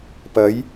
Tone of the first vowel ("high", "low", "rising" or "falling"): rising